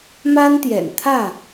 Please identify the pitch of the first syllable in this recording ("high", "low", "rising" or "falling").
high